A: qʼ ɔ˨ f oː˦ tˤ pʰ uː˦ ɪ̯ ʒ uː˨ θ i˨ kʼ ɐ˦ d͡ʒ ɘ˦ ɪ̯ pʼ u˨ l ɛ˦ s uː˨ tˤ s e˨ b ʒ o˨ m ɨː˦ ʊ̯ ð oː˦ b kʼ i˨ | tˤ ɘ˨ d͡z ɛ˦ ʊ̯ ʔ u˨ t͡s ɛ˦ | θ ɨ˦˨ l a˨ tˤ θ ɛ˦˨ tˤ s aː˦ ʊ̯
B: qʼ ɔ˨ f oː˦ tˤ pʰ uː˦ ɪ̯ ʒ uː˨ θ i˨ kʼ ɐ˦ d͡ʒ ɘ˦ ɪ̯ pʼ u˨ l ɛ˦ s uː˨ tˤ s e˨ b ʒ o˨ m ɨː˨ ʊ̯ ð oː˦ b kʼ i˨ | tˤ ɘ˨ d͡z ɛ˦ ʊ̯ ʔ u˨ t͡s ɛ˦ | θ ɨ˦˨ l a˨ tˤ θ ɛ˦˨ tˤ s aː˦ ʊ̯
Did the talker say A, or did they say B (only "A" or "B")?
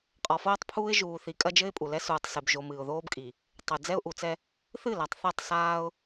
B